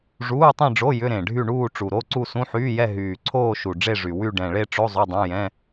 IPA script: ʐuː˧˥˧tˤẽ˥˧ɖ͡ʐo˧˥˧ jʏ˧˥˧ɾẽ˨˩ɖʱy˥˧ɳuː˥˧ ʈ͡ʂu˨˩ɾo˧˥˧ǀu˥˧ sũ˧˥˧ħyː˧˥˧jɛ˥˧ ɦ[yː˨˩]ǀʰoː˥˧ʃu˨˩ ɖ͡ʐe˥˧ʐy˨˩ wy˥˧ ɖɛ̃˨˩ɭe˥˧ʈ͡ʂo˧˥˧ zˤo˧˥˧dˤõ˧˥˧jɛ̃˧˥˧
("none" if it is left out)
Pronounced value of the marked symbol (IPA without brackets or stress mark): yː˨˩